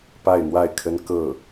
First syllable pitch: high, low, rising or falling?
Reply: falling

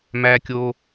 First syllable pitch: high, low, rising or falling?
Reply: high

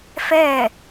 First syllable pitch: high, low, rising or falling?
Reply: falling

